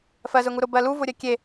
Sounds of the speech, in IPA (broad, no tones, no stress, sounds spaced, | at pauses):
f ɜ z ʊ ŋ u ɾ ʊ b ɜ l u v ʊ ɾʲ ɜ kʲ e